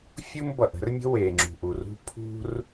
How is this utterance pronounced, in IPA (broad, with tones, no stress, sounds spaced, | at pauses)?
fʲ u˥ m b ʌ˩ ʔ ə̤˥ r mʲ ə̤˥ w e˩ ŋ͡ǁ ṳ˩ ʔ u˩ r ṳ˥ pʰ ṳ˥ r